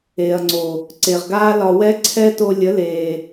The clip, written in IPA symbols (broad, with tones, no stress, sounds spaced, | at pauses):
e˨ ɐ̯ ŋ͡ǀ o˨ | ǀ e˨ ʁ ɡ aː˦ l ɒ˧ w ɛ˦ ǀʰ ɛ˦ t o˧ lʲ ə˨˦ l eː˨